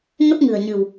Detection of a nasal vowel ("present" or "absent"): absent